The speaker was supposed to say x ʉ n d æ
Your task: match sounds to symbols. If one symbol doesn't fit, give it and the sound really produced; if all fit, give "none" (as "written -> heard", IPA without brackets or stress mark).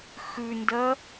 æ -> ɜ